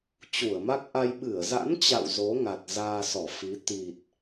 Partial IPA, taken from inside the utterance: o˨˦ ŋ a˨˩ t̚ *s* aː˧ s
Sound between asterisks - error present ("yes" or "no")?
yes